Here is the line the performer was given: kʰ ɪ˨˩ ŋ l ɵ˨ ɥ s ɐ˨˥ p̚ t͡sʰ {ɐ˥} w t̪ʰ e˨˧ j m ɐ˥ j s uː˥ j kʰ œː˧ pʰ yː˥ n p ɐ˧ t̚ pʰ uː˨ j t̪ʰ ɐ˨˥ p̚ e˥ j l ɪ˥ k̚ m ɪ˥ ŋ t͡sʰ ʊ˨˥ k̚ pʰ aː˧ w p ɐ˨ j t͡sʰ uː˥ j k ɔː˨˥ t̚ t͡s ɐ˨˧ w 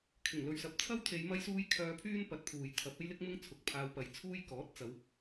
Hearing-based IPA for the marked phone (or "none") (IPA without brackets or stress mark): ɐ˥